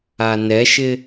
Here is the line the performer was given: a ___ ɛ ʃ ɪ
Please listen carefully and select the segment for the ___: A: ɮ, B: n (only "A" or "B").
B